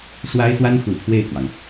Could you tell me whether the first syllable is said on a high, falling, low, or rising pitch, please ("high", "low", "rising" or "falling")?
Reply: high